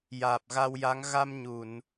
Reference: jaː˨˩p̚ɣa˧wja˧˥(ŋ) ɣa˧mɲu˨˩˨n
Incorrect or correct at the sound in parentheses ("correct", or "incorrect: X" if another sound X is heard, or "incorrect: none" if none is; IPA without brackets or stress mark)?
correct